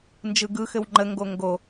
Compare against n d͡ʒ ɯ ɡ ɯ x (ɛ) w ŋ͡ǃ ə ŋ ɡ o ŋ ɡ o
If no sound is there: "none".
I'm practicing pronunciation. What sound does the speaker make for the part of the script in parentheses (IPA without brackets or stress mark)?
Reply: ɘ